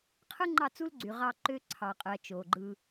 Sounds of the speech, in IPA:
qʰɯ˦ŋ͡ǃɑ˦˨t͡su˦lɡ͡ǀy˨ ʁɑ˦ǃø˦ ǀʰɑ˨qʼɯ˨ɐ̯ t͡ʃo˨ɡ͡ǃɯ˦

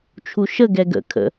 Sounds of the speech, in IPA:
t͡ʃʰuʃə ɡɛɡə̰ kʰə̰

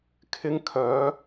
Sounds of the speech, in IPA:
kʰɪ˧ŋ kʰœː˨˧

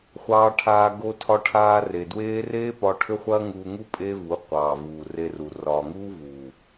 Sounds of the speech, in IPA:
χʷɑː˧ʈʰaː˧ ɡo˧tʰɒ˧ʈʰaː˧ re˨dweː˦ reː˦ pɒ˦ ʈʰʏ˦χʷɐː˦ŋuː˧ŋu˦ pʼe˦vu˨˦ qʷɑː˨vuː˨re˧ru˨ rɒː˨ŋuː˦vuː˨

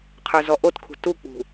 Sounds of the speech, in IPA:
qʰə˞zɔʔotkʰṳ tuk͡pṳ

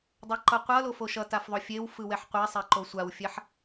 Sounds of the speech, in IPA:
dˤɛǃʌqʷʌlo foʃʌtaf ðˤofʲewfɯ wɛħqʷɛsˤɛ ǃosʷawfʲɛħ

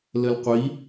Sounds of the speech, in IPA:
ləlqʷi

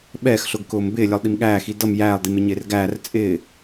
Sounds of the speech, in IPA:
ɓɛːx ɬʊːɡkʊːmbɪːlʲʌlˠ ɗimɠæːxi dʌm jæːlˠdim ɪɲɪːrɡæːr t͡sʼɪː

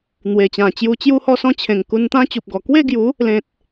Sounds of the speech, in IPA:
n̪we˨˩t͡ɕã˨˩t͡ɕju˧ t͡ɕju˥˧hɔ˥˧sɔ̃˦t͡ɕʰẽ˨˩ŋ ku˧nt̪ã˦t͡ɕu˨p̚ɡɔ˨˩ kwe˥˧ɡju˨˦ | lẽ˨t̚

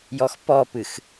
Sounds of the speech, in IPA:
jɔxpɔpɨx

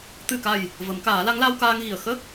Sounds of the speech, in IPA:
t̪ɨ˨˩ka˨˩j | və˨˩˦mkaː˨˩˦la˧˥ŋ la˧wkaː˧ŋɣi˨˩ə̯ xə˦˥k̚

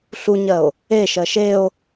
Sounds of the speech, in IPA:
ɬuɲɜo̯ | eʃɜ ʃeo̯

